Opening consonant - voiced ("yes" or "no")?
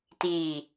no